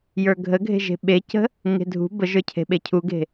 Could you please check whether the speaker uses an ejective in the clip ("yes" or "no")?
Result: no